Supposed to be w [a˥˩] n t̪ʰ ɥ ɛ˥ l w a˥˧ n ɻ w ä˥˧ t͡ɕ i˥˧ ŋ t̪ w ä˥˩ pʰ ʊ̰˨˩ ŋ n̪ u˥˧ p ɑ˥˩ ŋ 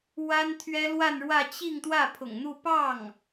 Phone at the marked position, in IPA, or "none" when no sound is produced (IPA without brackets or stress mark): a˥